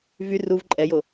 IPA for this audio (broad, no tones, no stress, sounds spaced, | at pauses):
v y r u v ǃʼ ɛ j o